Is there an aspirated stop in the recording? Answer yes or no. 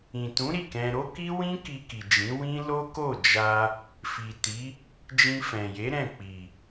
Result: no